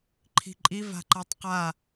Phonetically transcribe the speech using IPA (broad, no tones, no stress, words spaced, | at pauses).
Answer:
ǃʰi̤ǃʼiv a̤ǃatˤqa